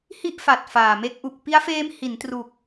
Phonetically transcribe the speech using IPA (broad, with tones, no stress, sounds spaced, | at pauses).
h i˥˩ ʔ f a˨˩ t̚ f aː˨˩ m e˦˥ k̚ ʔ u˨˩ k̚ p i˦˥ a̯ f eː˦˥ m h i˩˦ n t r u˨˩ k̚